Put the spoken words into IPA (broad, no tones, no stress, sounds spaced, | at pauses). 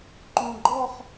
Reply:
ǃ ũ ɡ͡ǃ ɔ χ